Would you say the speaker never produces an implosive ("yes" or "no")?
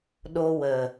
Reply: no